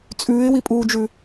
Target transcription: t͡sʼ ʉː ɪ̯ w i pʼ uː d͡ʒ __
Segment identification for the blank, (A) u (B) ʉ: B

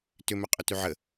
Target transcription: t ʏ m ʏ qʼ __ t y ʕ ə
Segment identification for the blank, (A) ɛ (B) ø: B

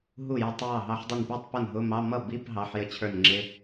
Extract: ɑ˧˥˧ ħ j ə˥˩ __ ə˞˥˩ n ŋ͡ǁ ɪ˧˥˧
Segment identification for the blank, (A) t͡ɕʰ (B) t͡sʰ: A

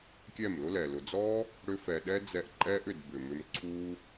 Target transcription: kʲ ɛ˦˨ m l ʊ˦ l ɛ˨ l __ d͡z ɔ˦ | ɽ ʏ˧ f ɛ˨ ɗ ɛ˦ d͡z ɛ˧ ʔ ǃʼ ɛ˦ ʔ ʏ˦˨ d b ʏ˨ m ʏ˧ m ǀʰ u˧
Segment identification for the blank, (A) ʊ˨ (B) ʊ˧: A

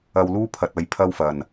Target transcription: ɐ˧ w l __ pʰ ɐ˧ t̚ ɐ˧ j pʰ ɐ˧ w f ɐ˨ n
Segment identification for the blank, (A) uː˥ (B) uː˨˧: A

